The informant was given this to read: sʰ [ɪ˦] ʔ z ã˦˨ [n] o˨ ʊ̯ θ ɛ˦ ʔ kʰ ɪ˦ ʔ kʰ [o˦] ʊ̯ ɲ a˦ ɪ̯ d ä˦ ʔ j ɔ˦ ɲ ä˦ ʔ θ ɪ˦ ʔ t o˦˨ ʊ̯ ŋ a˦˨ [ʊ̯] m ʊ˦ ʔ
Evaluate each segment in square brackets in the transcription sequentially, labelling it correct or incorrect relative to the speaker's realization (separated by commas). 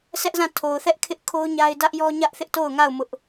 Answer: incorrect, incorrect, correct, correct